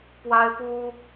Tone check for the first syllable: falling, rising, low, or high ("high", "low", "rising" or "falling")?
high